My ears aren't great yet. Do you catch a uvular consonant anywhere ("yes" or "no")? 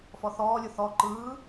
no